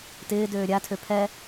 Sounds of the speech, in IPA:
tɪːdøː ɾʲatʰø pʰɛ

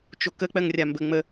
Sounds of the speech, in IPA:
t͡ʃokə k͡pɜŋrʲambə ŋ͡mə

